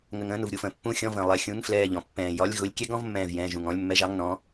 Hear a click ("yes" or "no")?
no